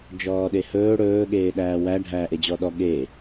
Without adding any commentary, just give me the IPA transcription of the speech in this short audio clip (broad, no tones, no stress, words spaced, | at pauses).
d͡ʒɔːɗehɵː ɽɵː ɠeːɗæːwæ ɖʱæːʔed͡ʑɔɗɔ ɠe